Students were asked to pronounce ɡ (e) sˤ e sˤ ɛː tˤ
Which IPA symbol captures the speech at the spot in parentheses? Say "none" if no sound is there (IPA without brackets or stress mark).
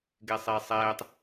e